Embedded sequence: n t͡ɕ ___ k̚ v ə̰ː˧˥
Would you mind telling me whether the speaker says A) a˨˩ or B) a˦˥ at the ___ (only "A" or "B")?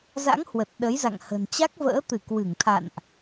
B